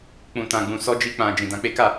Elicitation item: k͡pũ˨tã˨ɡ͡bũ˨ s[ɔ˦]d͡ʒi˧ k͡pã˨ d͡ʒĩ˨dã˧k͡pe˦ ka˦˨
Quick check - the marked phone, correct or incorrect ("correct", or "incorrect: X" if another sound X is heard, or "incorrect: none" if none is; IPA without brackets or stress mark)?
incorrect: ɔ˧